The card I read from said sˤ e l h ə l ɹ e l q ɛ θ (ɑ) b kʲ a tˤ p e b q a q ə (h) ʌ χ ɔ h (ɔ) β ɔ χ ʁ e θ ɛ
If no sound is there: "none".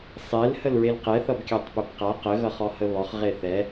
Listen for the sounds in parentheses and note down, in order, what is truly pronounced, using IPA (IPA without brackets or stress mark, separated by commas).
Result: ʌ, ɣ, ə